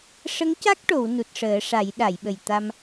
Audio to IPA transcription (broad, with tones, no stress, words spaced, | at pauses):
ʂə˧˥ŋca˦˥k̚ʈo˨˩˨w nu˨˩t̚ʂəː˨˩˦ʂa˨˩˦j ɗa˨˩˨jɓə˨˩jt̪a˧m